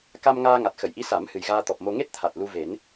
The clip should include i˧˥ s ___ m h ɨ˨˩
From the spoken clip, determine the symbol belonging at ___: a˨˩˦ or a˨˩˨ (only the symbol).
a˨˩˦